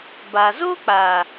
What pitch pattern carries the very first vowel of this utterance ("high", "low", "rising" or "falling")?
low